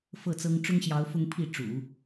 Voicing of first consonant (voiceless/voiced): voiceless